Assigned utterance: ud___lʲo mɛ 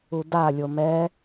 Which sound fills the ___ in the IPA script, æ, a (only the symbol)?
a